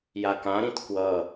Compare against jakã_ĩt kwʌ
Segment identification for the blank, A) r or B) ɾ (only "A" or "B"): B